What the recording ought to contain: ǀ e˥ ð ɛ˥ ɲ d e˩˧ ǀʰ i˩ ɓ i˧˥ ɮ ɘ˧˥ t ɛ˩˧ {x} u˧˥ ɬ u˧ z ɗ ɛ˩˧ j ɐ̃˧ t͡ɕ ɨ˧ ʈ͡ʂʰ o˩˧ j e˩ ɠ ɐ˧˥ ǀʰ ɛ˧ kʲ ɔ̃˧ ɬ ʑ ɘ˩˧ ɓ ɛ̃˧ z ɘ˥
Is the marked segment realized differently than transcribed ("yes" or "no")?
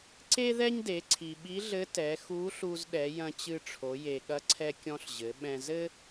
no